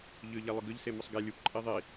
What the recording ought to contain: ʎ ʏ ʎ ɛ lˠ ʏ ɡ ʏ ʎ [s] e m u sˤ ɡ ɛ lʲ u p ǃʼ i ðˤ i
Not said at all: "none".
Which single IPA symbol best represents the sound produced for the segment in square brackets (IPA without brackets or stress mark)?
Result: s